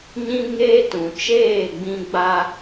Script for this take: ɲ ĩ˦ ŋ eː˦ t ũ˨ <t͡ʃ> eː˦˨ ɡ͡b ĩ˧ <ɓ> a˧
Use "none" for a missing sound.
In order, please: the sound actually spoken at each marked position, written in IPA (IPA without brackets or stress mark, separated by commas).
t͡ʃ, ɡ͡b